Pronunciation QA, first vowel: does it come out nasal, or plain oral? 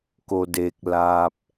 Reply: oral